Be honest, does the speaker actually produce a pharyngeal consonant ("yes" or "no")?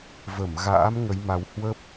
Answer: no